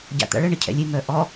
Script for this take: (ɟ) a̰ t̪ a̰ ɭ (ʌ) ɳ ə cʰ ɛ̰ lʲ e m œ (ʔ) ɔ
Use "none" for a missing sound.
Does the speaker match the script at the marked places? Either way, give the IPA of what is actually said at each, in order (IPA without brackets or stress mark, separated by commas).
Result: ɟ, ə, ʔ